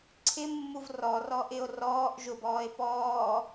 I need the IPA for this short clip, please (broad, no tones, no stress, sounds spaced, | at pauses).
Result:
ǀʰ ɪ mː u v r ɔ r ɔ ʔ ɪ o̯ r ɔː ʔ ʒ ʊ b ɔː e̯ p ɔː